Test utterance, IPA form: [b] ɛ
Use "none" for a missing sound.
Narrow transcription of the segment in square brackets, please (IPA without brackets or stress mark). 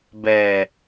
b